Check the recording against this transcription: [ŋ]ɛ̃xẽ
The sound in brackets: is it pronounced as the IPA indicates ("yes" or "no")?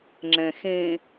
no